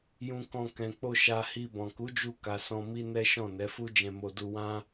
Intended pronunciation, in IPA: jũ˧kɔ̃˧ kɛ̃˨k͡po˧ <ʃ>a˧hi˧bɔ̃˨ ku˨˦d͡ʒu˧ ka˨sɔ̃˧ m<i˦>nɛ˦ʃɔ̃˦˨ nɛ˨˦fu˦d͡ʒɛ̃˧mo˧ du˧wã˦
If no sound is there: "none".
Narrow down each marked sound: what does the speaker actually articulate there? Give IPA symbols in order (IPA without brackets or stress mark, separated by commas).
ʃ, i˦